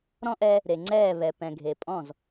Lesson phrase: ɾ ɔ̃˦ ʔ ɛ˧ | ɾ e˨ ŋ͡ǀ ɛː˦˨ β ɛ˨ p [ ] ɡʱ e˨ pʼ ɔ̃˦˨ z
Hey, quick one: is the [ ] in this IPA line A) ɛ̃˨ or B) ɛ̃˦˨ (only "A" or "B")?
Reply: A